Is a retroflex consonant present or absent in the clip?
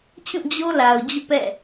absent